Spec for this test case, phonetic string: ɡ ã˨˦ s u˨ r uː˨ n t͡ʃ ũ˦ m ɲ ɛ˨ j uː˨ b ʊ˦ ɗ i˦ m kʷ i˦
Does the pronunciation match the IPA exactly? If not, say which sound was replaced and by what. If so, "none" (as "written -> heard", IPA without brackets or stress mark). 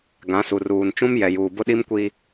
ɲ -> j